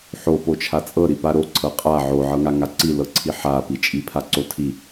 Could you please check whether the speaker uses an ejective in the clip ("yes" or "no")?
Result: yes